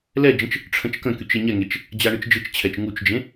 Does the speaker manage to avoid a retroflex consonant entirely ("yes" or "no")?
no